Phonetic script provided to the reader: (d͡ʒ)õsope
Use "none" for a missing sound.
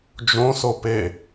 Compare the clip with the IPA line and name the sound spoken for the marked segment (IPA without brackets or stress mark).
d͡ʒ